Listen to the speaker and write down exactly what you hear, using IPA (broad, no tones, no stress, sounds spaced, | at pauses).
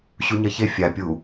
ɕ u ɲ ɐ ç e fʲ a pʲ u